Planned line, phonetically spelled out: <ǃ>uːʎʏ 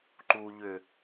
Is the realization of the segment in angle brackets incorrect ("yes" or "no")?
no